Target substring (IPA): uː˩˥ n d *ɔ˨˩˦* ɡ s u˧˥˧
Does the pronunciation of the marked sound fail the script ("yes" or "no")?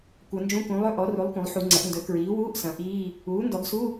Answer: no